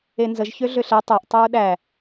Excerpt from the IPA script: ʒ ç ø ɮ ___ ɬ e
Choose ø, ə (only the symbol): ø